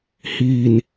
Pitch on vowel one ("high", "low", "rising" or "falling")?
low